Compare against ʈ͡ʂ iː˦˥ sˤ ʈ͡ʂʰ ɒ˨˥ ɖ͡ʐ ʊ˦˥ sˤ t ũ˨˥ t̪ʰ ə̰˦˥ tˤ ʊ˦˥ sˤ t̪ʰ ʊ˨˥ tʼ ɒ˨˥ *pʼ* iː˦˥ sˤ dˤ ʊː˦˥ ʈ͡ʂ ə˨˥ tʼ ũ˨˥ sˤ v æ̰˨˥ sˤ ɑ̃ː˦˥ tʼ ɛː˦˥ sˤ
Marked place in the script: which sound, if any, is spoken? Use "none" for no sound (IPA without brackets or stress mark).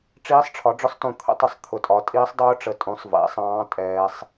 tʼ